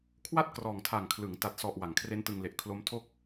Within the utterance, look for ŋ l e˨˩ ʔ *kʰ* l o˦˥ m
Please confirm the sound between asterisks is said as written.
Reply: yes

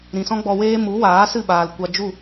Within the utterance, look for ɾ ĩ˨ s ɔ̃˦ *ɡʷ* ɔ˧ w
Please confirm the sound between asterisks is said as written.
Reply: no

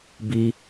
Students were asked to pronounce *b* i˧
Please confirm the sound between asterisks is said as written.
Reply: yes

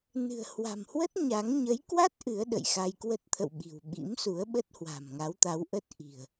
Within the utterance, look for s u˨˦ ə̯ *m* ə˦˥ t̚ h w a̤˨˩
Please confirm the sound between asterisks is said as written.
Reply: no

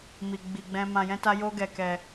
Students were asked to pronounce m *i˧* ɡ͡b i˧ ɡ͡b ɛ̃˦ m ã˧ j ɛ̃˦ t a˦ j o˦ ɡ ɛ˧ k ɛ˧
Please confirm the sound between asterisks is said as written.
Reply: no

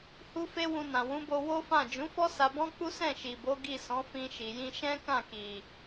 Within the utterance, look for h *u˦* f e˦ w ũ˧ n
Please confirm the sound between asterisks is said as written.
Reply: yes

